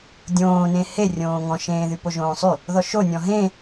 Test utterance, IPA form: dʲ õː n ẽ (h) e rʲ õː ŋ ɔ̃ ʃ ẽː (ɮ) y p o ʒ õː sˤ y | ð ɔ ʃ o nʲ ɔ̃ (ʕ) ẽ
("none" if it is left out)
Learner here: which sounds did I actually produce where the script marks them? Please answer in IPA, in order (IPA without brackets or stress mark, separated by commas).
h, ð, ɦ